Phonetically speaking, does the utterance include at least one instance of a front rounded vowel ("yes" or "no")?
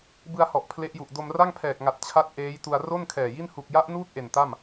no